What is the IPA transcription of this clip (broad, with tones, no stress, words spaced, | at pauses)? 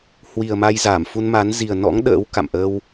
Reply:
hwi˨˩ə̯ma˧jzaː˧˩m fu˧nma˨˦n zi˨˩ə̯nɔ̰˧˥ŋ ɗə̰ː˧˥wka̰˧˨mʔə˧w